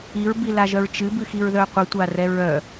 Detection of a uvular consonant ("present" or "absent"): present